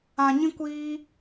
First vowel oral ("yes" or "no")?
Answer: no